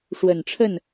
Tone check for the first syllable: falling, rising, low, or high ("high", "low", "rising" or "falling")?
low